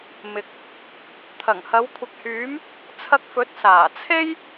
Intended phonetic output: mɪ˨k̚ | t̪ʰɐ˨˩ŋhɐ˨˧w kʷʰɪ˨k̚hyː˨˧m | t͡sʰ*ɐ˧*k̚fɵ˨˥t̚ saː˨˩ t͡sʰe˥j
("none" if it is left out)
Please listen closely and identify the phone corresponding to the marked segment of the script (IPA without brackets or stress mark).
ɐ˧